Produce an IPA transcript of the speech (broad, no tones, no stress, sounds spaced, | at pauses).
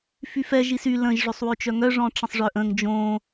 f y f ɛ ʒ i s y l ə̃ ʒ ʐ ø sˤ w ø t͡ʃ œ ŋ œ ʐ ɔ̃ ʈ͡ʂ ə̃ sˤ ʐ œ ʔ ə̃ ŋ d͡ʒ õ